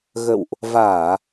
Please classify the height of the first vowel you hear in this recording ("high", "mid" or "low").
mid